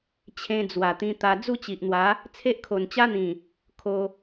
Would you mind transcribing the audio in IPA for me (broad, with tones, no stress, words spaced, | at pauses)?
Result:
t͡ɕʰẽ˧d͡zwa˨˩t̪ĩ˧t̪a˧ d͡zu˥˧t͡ɕi˨ʔn̪wa˨˦ | t͡sʰe˦ʔkʰo˨˩nt͡ɕa˦n̪ĩ˨˩ | kʰo˧